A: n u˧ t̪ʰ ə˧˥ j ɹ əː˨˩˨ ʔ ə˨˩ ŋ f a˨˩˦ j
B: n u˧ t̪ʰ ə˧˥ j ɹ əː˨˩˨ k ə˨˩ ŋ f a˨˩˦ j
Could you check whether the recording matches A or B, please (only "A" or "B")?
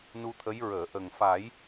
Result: A